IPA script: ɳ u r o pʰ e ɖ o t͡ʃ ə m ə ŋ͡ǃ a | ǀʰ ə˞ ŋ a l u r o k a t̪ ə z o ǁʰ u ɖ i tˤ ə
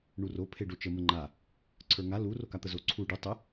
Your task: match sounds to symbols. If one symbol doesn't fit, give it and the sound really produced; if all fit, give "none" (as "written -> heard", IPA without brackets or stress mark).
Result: ǁʰ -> ǀʰ